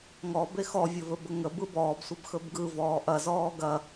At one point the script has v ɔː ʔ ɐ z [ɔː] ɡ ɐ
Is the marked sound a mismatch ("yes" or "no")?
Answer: no